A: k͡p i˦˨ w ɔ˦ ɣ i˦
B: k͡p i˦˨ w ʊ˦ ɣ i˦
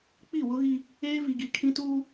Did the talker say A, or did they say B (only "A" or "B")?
B